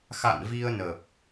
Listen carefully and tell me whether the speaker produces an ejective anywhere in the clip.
no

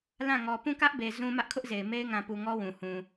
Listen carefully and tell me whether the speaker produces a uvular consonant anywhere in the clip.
no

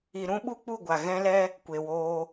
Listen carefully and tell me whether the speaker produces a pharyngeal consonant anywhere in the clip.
no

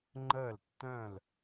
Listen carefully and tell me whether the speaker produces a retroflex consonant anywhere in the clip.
no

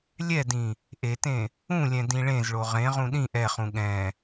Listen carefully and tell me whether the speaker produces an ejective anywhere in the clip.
no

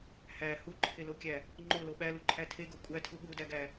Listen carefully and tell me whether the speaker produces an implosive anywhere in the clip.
yes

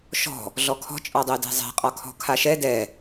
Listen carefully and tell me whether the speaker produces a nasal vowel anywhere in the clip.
no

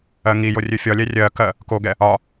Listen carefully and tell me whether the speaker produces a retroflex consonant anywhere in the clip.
no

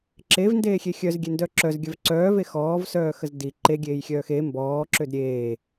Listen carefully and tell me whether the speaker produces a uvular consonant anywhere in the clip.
no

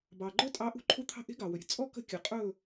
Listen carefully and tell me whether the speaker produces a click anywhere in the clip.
yes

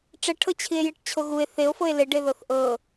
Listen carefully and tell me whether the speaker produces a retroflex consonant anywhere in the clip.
yes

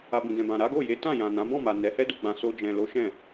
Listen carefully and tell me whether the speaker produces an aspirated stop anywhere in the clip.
no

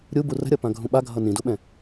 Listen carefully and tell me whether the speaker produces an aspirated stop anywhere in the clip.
no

